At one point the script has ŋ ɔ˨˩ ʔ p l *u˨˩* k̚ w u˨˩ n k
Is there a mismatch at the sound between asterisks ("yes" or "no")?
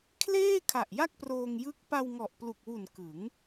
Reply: no